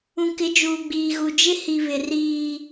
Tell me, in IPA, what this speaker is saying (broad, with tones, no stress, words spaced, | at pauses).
ũ˨kɪ˨˦d͡ʒuː˨ɡ͡biː˨ ɣu˨d͡ʒɪ˦hi˨ βɪ˨riː˨